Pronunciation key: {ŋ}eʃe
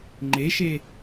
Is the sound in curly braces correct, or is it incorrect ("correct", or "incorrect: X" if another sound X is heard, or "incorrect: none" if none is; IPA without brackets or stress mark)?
incorrect: ŋ͡ǃ